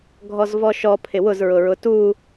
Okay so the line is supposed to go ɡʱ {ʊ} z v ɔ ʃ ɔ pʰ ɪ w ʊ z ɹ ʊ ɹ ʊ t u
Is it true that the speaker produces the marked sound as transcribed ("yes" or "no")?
no